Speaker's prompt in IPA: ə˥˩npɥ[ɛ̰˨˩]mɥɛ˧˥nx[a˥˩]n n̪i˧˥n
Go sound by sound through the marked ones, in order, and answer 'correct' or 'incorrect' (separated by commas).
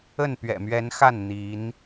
correct, correct